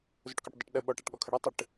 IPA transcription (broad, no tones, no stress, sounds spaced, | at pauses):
z ʊ ʈ k ɔ ʈ dˤ ʊ ʈ ɗ ə ɓ ɔ ʈ a ʈ ɠ ɔ kʰ ə ɽ ɔ tˤ ə ʈ